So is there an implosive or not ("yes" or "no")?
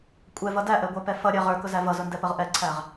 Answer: no